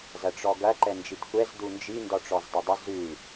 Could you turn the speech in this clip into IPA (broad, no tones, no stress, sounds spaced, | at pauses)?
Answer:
z ɐ ʈ͡ʂ ɔ ɡ ɐ ǃ ɛ n d͡ʒ i t kʷ ɛ z d u n d͡ʒ i n d ɔ ʈ͡ʂ ɔ z dˤ ɐ dˤ ʏ z ʉ